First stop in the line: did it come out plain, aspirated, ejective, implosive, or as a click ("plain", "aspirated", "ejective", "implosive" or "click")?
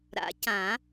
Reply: plain